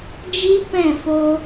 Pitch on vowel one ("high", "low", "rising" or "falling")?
high